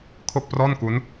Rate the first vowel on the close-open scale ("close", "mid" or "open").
mid